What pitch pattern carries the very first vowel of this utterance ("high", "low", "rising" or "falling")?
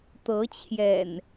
rising